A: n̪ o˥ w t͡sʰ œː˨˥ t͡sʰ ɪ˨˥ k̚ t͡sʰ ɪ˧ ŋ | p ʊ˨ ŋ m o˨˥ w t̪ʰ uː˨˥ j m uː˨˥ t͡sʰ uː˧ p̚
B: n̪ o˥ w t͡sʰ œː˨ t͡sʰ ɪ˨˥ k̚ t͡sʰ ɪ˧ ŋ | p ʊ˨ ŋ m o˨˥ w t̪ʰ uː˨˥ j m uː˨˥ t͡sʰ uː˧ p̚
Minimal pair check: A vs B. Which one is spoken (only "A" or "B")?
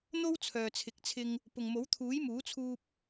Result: B